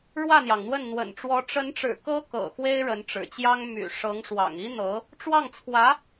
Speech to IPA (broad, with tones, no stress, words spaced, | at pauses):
ɻwä˥˩n̪jɑ˩ŋn̪wə˥˩n n̪wə̰˨˩nʈ͡ʂwɔ˧˥ ʈ͡ʂə˧˥nʈ͡ʂɻ̩˨˩ kɤ˥kɤ̰˨˩ xwe˥ɪ̯ɻə˧˥nʈ͡ʂɻ̩˨˩t͡ɕjɑ˥ŋ my̰˨˩ ʂɤ˧˥ŋʂwɑ̰˨˩ŋ i˥n̪ɤ˧˥ | ʈ͡ʂwɑ˥˩ŋt͡sʰwä˧˥